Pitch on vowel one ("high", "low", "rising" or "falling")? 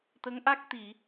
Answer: rising